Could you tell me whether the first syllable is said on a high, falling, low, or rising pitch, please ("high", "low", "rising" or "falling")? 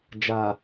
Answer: low